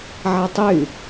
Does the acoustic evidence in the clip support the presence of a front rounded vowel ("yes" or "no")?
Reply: yes